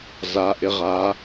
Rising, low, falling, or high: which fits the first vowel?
rising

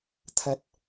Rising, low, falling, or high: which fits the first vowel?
high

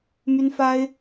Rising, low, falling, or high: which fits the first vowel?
high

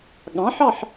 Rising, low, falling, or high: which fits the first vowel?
rising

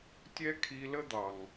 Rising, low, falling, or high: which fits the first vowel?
high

